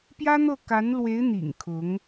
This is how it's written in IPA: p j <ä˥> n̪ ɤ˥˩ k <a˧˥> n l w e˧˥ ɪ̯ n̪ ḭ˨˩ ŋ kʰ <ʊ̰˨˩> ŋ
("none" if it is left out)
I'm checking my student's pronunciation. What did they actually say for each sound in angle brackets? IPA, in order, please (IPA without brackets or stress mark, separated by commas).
ä˥, a˧˥, ʊ˧˥